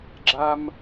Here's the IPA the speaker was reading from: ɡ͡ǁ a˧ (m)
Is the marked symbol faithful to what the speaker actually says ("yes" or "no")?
yes